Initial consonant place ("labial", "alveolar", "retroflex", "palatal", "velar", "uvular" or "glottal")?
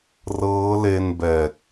alveolar